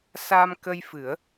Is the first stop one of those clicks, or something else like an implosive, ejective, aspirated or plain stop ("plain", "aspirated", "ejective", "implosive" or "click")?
plain